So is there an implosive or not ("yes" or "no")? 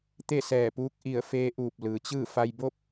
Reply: no